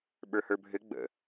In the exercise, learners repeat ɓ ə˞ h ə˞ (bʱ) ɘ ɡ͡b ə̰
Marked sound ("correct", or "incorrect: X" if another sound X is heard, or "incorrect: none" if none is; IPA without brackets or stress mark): correct